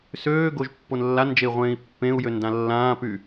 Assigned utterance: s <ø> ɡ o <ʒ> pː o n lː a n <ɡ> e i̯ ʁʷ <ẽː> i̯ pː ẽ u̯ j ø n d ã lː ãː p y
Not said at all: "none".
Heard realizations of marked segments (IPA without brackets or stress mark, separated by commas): øː, ʒ, d͡ʒ, ẽː